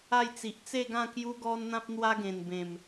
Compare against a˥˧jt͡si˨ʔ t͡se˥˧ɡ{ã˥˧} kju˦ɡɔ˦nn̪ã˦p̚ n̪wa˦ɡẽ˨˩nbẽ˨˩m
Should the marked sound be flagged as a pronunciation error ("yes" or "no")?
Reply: no